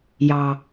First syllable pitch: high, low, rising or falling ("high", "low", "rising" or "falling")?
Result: low